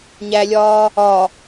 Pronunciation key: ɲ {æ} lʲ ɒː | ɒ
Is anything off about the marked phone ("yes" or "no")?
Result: no